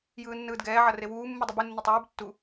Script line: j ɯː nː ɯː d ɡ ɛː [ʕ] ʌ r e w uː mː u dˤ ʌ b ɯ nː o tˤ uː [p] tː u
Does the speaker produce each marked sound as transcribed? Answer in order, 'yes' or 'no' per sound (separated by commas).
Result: yes, no